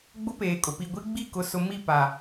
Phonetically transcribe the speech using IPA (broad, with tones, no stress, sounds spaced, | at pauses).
ɡ͡b ʊ˦ p eː˨ kʼ ʊ˨ p i˨ ɡʷ i˦ ɡ͡b i˦˨ k ʊ˦ s ʊ˦ m i˦˨ p a˨